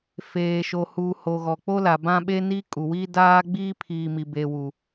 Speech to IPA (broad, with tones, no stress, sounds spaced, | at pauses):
f eː˨ ʃ o˨ h uː˨ h o˨ ɣ ɔ˨ k͡p o˦ l a˨ b ã˦ ɓ e˦ n iː˦ kʼ u˨ w i˦ d aː˦ ɡ͡b iː˦ pʰ iː˨ m i˨ b e˨ w u˨